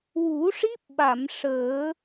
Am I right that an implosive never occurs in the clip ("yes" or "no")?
no